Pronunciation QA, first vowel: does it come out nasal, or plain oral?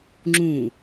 nasal